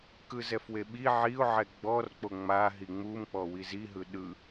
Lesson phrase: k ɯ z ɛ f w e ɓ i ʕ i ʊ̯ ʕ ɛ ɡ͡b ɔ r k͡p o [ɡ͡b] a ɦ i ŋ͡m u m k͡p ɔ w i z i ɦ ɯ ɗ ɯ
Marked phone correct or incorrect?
incorrect